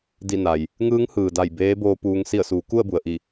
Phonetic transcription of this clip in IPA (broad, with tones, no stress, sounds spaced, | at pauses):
d i˧˩ n a˩ j | ŋ ɯː˧˥ ŋ h ɯː˩ d a˧˩ j b eː˧˥ b oː˧ p uː˧ ŋ s i˧˩ ə̯ s uː˩˧ k u˥˨ ə̯ b u˩ ə̯ ʔ i˧˩